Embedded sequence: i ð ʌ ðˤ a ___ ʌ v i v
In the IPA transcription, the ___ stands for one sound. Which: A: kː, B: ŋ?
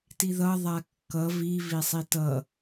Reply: A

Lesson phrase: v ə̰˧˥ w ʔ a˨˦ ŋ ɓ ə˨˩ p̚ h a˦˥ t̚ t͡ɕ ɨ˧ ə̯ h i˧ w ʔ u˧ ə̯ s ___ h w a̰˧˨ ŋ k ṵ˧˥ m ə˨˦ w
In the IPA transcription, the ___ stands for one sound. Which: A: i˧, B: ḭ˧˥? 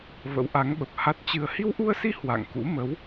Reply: A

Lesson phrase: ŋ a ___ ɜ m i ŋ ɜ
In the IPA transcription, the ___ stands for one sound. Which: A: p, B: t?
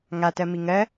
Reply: B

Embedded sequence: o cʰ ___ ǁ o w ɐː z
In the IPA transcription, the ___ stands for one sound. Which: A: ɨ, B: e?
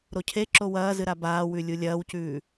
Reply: B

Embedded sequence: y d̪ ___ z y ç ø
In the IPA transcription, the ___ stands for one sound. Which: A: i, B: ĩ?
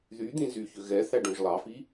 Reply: B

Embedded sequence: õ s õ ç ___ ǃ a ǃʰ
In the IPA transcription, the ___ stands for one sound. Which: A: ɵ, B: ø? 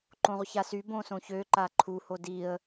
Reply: B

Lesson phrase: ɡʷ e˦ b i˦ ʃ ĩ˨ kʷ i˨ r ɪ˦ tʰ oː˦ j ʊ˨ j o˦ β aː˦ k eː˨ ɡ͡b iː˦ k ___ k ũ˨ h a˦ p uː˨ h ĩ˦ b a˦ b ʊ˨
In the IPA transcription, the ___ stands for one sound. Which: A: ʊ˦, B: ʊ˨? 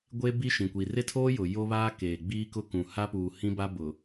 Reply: A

